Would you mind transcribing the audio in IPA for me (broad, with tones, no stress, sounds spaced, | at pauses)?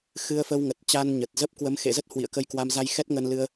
x ɨ˧ ə̯ f ə˧ w ŋ ə˨˩ t̚ t͡ɕ a˧ n ɲ ə˨˩ t̚ z ə˦˥ p̚ k w ə˨˦ m x ḛ˧˨ z ə˦˥ t̚ h w ḭ˧˨ ə̯ k ə˧ j k w a˧ m z a˧ j x ɛ˦˥ t̚ ŋ ə˧ n l ɨ˧ ə̯